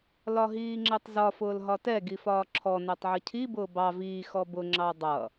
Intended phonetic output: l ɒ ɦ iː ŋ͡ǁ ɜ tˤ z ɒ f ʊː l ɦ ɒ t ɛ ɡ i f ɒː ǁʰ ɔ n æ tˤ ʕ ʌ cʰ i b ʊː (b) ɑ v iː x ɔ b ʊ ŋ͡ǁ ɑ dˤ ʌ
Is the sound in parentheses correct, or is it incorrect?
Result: correct